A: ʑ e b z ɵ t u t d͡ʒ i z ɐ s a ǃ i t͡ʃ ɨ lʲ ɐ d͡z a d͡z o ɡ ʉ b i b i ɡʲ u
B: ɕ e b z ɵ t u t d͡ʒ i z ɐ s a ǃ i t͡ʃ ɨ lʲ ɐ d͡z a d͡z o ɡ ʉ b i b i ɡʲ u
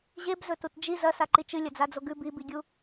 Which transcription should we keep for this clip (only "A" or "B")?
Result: A